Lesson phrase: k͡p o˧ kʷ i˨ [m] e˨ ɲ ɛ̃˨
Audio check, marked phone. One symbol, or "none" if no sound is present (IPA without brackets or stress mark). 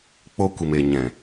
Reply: m